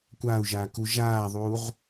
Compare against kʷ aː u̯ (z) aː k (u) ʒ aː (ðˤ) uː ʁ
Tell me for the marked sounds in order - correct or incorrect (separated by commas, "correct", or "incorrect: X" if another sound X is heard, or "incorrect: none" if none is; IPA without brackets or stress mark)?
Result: incorrect: ʒ, correct, correct